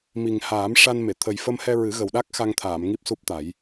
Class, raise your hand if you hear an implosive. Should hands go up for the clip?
yes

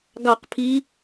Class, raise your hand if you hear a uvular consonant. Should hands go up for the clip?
yes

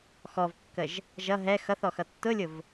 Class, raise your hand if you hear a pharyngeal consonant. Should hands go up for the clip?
no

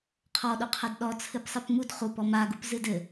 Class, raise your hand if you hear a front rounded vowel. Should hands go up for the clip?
no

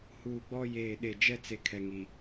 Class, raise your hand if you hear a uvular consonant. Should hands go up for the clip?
no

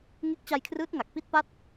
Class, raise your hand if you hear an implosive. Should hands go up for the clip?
no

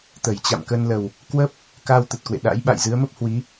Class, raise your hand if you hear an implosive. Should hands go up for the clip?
yes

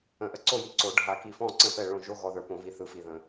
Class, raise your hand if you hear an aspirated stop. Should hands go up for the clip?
no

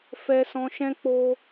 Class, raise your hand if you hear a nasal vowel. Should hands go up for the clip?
yes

